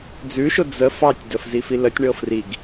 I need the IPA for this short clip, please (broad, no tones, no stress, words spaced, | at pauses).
d͡zʉʃʊ d͡zə fɑtʲdəf zifilətʲɳɤ friɡ